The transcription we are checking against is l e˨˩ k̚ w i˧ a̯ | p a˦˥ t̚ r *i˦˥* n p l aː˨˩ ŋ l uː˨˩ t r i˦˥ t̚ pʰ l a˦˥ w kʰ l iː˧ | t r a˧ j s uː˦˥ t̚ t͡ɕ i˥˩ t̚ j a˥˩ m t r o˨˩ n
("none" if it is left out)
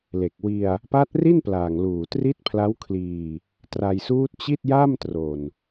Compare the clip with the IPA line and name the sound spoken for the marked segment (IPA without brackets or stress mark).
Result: i˥˩